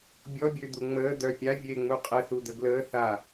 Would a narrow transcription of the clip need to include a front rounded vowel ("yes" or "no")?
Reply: yes